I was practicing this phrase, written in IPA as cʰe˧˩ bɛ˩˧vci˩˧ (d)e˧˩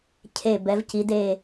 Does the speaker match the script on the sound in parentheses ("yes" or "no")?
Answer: yes